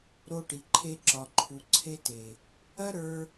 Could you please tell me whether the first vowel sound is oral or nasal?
oral